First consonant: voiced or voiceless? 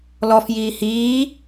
voiced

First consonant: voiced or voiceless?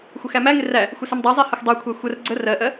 voiceless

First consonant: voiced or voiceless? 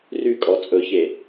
voiced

